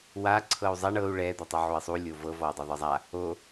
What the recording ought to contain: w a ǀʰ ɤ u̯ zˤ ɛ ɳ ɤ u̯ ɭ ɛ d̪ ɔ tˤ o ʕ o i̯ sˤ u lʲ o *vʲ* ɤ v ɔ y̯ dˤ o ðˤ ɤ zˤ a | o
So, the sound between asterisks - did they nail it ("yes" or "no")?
no